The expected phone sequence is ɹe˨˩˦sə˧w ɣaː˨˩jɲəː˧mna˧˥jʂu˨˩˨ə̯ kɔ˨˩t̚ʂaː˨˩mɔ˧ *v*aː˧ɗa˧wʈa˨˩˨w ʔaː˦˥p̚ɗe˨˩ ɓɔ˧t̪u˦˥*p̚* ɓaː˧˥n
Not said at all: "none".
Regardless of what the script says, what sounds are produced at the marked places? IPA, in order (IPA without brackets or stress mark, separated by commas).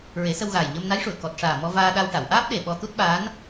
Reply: v, t̚